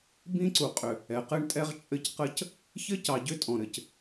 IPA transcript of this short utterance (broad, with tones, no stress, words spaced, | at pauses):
bĩ˦ǀu˨qʼʏ˨ | ɛ˨qɘ˦ɳtʼɛ˦ʁ t͡ʃʼɘ˦cqə˦c | çɘ˦cɑ˨ɟʏ˦ tʼɔ̃˨ɾɘ˨c